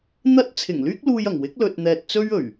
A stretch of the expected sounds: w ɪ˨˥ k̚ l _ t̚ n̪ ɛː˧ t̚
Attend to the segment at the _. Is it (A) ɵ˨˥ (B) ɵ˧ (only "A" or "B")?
B